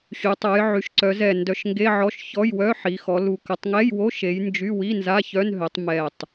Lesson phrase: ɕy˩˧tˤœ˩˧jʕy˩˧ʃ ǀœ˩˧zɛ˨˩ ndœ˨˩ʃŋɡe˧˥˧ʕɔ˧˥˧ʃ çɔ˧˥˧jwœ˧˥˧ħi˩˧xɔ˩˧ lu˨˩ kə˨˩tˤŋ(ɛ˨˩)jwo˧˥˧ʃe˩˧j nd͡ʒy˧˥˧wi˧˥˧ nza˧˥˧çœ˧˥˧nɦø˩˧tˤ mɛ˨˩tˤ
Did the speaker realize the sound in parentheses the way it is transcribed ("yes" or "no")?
no